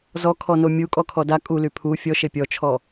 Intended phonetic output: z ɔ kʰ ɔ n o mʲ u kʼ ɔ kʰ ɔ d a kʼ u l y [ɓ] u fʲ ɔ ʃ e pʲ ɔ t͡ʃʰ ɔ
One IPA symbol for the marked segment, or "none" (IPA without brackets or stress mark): pʰ